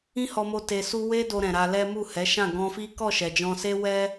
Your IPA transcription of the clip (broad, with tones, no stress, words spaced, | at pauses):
ĩ˦hɔ˧mo˧ te˧su˦ we˦do˧ɾɛ̃˨ ɾa˧lɛ˦ mu˦˨hɛ˨˦ʃã˦˨ ɡɔ̃˧fi˦ kɔ˦˨ʃɛ˨d͡ʒɔ̃˧se˦ wɛ˦